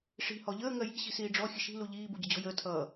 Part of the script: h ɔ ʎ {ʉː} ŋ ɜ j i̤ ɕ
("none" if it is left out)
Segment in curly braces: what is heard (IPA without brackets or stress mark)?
əː